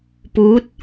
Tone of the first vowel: rising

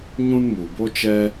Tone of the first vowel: high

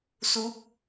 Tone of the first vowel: rising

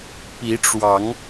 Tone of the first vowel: rising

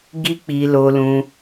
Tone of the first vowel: high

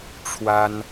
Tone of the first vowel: high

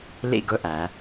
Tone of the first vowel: falling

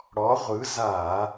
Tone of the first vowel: rising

